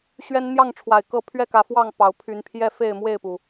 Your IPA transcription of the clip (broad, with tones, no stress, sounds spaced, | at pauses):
ɕ ɥ ɛ˦ n n̪ j ɑ˥˨ ŋ ʈ͡ʂʰ w a˨˩ ɪ̯ k ɤ˥˨ pʰ ɥ ɛ˥˨ k ä˨˦ f w ɑ˥˨ ŋ p ɑ˨˦ ʊ̯ pʰ y˨˦ n pʰ j ɛ˥˨ f e˥˨ ɪ̯ m w e˥˨ ɪ̯ p u˩